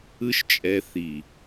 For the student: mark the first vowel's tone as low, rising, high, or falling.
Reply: high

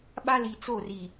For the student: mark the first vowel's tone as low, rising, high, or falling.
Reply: high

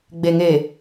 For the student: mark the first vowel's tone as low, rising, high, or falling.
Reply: low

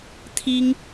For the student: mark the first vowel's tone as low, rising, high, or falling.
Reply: high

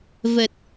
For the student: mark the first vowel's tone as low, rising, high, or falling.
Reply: low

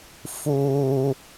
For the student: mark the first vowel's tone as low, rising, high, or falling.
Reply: high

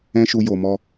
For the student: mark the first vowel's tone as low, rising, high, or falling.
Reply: high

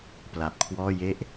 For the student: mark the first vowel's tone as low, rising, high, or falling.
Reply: low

